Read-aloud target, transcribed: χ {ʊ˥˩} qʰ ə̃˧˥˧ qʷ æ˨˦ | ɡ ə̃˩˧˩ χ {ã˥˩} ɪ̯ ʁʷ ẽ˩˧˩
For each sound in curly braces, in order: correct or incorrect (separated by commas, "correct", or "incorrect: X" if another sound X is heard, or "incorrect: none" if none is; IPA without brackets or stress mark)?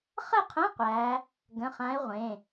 incorrect: ə˥˩, incorrect: ã˨˦